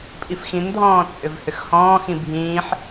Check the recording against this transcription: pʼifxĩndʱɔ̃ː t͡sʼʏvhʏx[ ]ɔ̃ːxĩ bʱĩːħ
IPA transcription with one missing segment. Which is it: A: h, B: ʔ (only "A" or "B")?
A